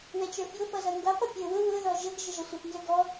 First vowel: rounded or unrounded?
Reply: unrounded